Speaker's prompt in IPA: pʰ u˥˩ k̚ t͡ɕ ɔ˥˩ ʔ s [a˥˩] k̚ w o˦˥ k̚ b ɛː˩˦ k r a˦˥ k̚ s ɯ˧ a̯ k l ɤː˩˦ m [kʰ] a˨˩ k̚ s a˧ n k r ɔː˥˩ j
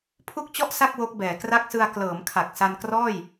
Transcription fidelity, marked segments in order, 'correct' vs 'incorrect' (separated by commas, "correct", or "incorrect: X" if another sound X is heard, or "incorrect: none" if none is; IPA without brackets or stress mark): correct, correct